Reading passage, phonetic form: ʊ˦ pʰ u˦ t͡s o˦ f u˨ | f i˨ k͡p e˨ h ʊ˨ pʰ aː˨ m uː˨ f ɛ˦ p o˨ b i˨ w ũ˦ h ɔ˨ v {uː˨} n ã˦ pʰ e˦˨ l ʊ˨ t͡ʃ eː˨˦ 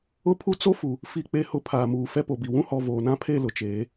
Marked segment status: incorrect: oː˨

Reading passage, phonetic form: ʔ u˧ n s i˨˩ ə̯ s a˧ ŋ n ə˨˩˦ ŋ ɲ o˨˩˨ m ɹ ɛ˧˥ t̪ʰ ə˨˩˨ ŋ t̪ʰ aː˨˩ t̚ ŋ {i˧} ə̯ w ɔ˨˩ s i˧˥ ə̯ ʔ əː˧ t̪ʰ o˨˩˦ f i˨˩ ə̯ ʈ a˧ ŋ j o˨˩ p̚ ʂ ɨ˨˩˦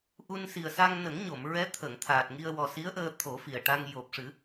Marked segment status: correct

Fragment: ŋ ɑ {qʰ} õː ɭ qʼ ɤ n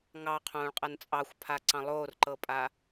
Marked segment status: correct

